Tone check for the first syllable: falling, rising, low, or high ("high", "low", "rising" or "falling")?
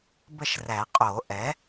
falling